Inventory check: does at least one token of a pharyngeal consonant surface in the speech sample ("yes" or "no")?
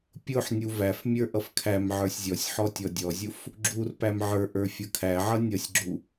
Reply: yes